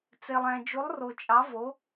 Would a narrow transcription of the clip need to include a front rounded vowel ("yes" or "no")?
no